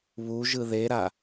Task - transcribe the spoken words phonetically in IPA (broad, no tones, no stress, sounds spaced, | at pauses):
β u ʒ ɯ ð e ɾ a